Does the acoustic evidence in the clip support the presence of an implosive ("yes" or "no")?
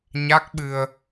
yes